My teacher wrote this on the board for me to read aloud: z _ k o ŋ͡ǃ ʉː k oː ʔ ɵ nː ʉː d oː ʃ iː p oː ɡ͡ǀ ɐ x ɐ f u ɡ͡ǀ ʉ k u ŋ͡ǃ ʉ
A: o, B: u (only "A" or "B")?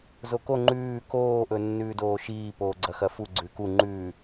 A